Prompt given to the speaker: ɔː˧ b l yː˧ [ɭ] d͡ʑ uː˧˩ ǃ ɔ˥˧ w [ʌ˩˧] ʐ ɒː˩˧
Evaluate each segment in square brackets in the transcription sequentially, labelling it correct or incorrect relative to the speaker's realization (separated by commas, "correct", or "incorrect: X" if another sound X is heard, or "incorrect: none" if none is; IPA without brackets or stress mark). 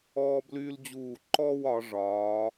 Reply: incorrect: l, incorrect: ɒ˩˧